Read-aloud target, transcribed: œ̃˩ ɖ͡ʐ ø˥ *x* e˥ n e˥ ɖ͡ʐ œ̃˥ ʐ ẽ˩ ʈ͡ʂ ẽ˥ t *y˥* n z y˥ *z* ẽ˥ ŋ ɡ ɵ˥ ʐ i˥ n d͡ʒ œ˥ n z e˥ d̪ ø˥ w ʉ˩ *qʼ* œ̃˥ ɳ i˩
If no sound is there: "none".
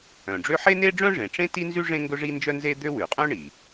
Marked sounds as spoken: ħ, i˥, ʐ, qʼ

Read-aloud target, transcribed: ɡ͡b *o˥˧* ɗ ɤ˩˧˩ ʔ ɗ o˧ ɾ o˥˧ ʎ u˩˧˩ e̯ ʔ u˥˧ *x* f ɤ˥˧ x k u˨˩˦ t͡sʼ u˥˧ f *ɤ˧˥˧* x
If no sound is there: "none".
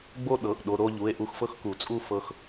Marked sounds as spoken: o˥˧, x, ɤ˧

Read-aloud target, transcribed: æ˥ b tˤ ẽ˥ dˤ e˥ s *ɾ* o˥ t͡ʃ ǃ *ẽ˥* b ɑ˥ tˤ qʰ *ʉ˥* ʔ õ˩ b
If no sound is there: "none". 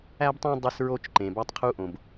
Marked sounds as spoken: ɹ, ẽ˩, u˥

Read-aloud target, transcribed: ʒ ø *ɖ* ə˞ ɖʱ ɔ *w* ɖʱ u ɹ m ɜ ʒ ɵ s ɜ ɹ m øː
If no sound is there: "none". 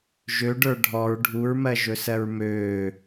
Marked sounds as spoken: ɖ, ɹ

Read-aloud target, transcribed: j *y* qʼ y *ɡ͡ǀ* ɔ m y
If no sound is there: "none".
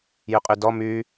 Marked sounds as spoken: y, d

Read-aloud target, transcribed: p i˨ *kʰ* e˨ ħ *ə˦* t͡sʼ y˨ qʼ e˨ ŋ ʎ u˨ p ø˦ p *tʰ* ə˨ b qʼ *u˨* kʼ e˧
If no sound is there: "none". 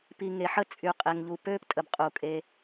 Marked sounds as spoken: ŋ, ə˦, tʼ, u˨

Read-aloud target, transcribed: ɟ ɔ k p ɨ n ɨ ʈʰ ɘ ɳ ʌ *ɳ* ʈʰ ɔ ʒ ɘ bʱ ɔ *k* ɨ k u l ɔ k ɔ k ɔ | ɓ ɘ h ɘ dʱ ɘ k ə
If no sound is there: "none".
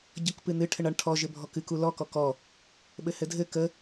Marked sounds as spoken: ɳ, k

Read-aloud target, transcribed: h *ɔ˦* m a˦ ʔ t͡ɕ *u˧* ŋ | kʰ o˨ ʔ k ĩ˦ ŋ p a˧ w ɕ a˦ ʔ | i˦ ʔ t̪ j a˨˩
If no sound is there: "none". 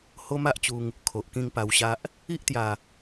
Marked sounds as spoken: o˦, u˧

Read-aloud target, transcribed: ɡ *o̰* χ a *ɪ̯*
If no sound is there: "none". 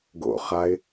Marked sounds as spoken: o̰, ɪ̯

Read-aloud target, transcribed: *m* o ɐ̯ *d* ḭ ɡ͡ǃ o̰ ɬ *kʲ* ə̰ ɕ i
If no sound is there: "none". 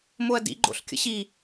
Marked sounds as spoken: m, d, kʲ

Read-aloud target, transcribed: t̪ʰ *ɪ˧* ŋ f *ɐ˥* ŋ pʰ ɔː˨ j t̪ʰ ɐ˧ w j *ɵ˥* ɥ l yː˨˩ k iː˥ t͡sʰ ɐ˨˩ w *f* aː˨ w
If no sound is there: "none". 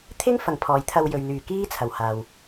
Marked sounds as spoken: ɪ˥, ɐ˨˩, ɵ˨, h

